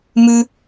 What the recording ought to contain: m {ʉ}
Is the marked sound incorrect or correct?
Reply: correct